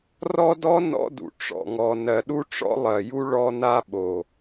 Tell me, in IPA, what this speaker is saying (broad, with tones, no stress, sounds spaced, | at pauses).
r ɔ˦ d ɔ˦ n ɔ̰˦ d ṵ˨ ʈ͡ʂ ɔ̰˨ ŋ ɔ˨ n ɜ˨ ɗ u˦ ʈ͡ʂ ɔ̰˦ lˠ ɜ˨ j u˦ ɭ ɔ˦ n a˦ ɓ o˨